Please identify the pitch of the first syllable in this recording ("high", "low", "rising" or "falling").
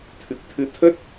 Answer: low